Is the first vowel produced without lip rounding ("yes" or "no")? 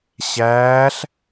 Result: yes